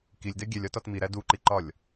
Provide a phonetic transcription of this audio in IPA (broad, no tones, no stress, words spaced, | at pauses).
kilʲdɛ ɡʲɛlʲɒtɒt miɾæ duǃiǃɒlʲ